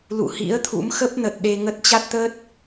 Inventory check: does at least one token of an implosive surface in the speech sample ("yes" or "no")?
yes